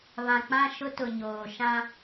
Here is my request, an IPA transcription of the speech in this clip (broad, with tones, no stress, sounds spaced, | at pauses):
β ã˨ k͡p ã˦˨ ʃ ʊ˦ t ʊ˨ ɲ oː˨ ʃ ã˦